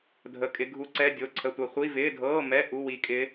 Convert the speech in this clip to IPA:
dʱ ə˧˥˧ kʼ ɪ˧˥ ɡʱ u˧˥ ǀ ɛ˧˥˧ dʲ o˧˥˧ ǀʰ ə˧˥˧ tʷ ɐ˧˥ χʷ i˧˥˧ v ɪː˧˥˧ dʱ ɤː˧˥˧ m ɛ˧˥˧ ʔ u˧˥˧ w i˧˥ kʼ ɪ˧˥

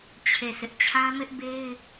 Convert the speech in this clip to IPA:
t͡ɕʰ e˦˨ s ɪ˦ ʔ t͡ɕʰ ã˦ m ɪ˦ ʔ b e˦ ɪ̯

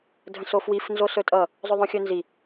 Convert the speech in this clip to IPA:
dʱ ə̃ s o f w i f n z o s ɵ tʼ ʌ | zˤ ɵ ðˤ õ xʲ ɵ n z i

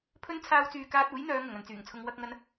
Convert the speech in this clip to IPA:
pʰ ɵ˥ n t͡sʰ aː˥ w t͡s yː˧ k aː˥ t̚ uː˨˥ j n̪ œː˨˧ ŋ ʊ˨˩ ŋ ɐ˨ n t͡s yː˨˩ ŋ t͡sʰ ʊ˧ ŋ w ɐ˥ k̚ ŋ ɐ˥ n

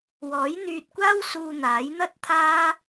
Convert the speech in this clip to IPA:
w ɔː˨˥ j n̪ yː˧ t̚ kʷ aː˥ w s uː˧ n̪ aː˨˥ j n̪ ɐ˥ t̚ t̪ʰ aː˥

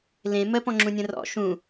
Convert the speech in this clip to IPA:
l ẽ m ə p ɔ̃ ŋ͡ǁ ũ nʲ ə̃ r ɔ̰ ʃ ũ

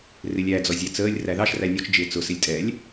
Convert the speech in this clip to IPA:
r ɪ lʲ æ d͡z ɔ zʲ æ t͡s əː lʲ r æ ð ɑ ʃ r æ nʲ ɔ t͡ʃ d͡ʒ ɪː t͡s ʊ s ɪ lʲ tʼ ɛ lʲ

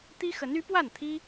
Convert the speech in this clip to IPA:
t̪ i˥ x ə˧˥ n y˧˥ p w a˥˩ n t̪ʰ i˥

